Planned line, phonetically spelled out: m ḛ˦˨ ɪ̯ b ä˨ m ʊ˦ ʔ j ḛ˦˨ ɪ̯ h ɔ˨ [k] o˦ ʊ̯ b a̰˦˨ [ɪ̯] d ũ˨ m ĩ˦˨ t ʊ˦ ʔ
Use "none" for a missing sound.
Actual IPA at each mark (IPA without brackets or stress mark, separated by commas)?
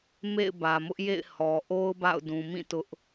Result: ʔ, ʊ̯